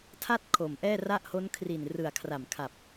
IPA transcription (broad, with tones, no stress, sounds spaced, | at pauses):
tʰ a˥˩ t̚ kʰ o˨˩ m ʔ ɛː˥˩ r a˥˩ ʔ h o˦˥ n kʰ r i˨˩ n r ɯ˨˩ a̯ kʰ r a˨˩ m kʰ a˨˩ p̚